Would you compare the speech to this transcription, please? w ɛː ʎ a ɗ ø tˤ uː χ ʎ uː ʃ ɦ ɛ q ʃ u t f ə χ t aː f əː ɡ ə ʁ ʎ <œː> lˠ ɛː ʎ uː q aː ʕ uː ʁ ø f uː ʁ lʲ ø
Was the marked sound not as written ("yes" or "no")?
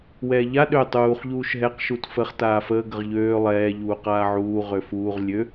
yes